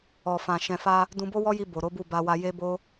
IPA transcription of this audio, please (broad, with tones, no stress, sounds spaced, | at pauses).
ɔ˨ f ã˨ ʃ ɛ̃˨ f a˧ | d ũ˧ b o˦ w ɔ˦ j i˧ b o˨ ɾ o˨˦ b u˦˨ b a˧ w a˧ j e˦ b o˦